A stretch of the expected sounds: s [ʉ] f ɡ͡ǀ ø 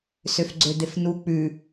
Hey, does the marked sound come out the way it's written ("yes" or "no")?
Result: no